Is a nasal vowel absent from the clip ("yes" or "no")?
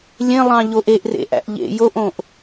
no